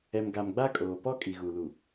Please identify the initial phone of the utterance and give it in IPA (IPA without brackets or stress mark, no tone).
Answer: ɛ